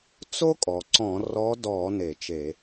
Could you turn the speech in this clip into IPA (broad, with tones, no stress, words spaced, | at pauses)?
t͡so˥kʼɔ˩ ǀɔ̃˧˩˧rɔ˧˥dɔ˧˩˧ ne˧˩˧t͡ʃe˧˩˧